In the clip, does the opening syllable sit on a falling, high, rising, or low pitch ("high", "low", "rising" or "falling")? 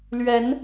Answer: rising